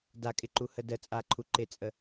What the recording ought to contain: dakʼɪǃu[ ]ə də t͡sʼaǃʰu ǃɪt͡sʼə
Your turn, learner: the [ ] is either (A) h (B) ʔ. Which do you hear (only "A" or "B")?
A